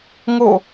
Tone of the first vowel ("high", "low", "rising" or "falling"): falling